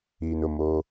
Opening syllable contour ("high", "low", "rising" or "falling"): low